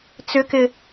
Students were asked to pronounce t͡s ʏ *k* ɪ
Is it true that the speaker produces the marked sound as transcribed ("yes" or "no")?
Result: yes